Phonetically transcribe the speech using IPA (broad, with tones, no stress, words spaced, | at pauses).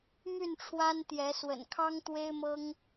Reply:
my˥˨nʈ͡ʂʰwa˦nt̪jɛ˨˦swə̰˨˩n kʰɑ˦ŋt̪we˦ɪ̯mɤ˦ŋ